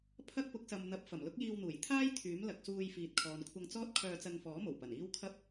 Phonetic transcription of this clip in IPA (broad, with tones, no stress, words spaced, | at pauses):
pʰɐ˥k̚pʊ˨˥k̚sɐ˨mn̪ɐ˨˥p̚ fɐ˨˩mlʊ˥k̚jiː˧wn̪uː˨˩j t̪ʰaː˥j t̪ʰyː˨˥m lɐ˨k̚suː˧jfiː˨t̚ kʰɔː˨nkʷʰɐ˧ŋt͡sɔː˥t̚ kʰœː˧t͡sɐ˧nfɔː˨˥ mo˨˩wpɐ˨˩niː˥w kʰɐ˥p̚